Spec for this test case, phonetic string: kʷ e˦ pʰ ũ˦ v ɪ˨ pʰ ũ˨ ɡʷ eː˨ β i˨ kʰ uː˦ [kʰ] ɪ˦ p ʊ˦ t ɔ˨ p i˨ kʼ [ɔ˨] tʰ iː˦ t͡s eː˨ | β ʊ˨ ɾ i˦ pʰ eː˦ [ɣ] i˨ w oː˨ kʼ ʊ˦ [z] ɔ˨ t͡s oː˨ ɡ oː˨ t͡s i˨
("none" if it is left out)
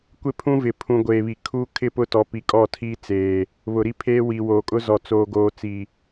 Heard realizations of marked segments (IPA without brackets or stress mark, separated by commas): kʰ, ɔ˦˨, w, z